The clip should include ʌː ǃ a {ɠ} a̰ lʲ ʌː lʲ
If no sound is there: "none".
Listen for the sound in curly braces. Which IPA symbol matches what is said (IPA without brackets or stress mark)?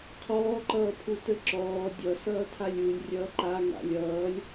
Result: ŋ